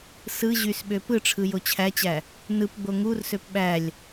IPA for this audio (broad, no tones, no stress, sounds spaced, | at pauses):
s ɯ ʑ y s ɓ ø p ɯ ʈ͡ʂʰ ɯ j o t͡ɕʰ æ t͡ɕ æ | n ɯ p ɡ͡b o ŋ u r s ø p ɓ æ lʲ